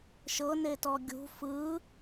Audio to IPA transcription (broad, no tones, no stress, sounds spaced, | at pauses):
ʃ ɤ n e t ɔ ɡʲ ṳ f ɯ